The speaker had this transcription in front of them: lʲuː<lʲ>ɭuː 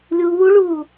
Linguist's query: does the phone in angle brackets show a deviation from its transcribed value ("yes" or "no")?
yes